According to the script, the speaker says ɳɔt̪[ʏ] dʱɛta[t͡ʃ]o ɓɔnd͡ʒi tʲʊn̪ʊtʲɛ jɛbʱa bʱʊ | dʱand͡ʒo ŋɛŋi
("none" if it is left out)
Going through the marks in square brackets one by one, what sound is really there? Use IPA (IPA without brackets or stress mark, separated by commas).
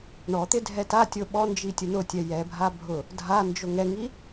ɪ, tʲ